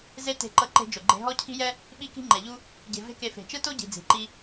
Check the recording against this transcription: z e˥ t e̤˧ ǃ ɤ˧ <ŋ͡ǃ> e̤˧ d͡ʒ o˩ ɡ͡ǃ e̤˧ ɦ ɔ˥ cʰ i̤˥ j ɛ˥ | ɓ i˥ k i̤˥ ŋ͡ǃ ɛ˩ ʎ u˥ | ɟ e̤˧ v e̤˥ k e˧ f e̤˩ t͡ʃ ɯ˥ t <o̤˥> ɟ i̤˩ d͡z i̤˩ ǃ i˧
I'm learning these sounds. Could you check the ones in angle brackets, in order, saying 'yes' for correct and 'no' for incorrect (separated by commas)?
no, no